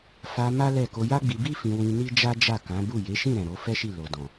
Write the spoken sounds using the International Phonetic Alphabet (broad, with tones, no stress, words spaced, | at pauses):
fa˧ ma˦lɛ˦˨ ko˧ja˦ɡ͡bi˧ bi˦ fĩ˧wĩ˧ ni˦d͡ʒa˦d͡ʒa˦˨ kã˨˦bu˦˨ je˨˦ʃĩ˦˨ɾɛ̃˨ ɾo˨˦ fɛ˦ʃi˦˨ lo˨dɔ̃˨